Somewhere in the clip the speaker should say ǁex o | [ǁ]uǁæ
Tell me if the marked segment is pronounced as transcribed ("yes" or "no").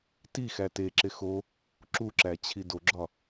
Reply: yes